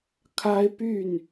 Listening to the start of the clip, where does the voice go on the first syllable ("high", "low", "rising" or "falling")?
high